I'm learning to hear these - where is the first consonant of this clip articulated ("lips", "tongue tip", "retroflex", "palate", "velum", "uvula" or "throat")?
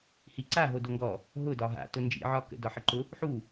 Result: throat